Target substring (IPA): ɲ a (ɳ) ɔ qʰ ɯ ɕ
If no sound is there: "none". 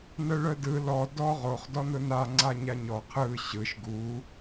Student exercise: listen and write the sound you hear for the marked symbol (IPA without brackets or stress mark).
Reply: ɲ